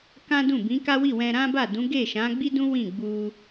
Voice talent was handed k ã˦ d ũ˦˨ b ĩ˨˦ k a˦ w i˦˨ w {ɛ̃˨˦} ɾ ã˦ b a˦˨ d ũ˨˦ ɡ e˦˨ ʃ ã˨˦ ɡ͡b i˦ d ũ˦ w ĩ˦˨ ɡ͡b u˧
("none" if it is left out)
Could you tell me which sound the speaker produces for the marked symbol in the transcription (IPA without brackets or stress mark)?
ɛ̃˧